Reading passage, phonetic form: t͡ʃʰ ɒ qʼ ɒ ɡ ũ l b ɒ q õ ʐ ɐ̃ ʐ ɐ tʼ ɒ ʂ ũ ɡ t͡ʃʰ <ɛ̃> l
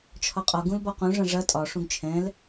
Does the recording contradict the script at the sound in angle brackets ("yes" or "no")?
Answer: no